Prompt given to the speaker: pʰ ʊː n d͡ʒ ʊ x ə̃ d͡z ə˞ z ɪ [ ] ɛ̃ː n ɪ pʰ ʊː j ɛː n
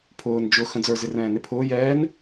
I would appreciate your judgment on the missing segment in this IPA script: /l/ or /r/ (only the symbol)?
r